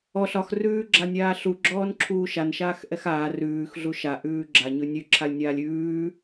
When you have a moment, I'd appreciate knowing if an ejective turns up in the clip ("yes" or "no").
no